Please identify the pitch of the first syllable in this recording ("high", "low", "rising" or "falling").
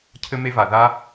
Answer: high